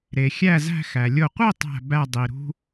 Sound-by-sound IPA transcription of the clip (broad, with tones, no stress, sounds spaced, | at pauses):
ɾ e˩ xʲ æ˧˩ z æ̤˧˩ x æ˩ lʲ o˧˩ qʷ i˥˧ tˤ æ̤˧˩ b æ˧˩ dˤ i˩ ɾ ṳ˧